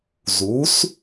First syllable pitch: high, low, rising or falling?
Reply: rising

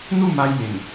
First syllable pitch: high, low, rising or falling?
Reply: falling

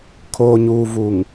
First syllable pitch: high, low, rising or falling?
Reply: low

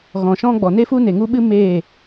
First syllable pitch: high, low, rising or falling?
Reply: low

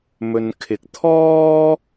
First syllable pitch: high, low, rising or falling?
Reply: low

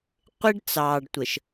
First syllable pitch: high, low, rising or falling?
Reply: high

